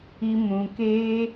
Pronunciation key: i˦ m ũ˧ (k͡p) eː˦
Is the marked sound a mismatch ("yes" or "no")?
yes